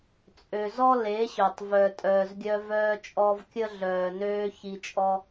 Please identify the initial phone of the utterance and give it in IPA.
t͡sʼ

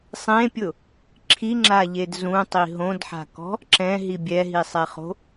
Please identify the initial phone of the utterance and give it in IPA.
sˤ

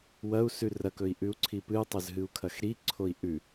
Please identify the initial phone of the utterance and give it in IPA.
w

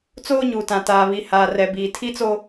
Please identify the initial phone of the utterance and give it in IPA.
t͡s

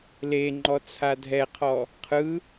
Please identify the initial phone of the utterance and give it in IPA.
l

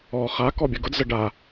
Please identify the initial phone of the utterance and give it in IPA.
ɔ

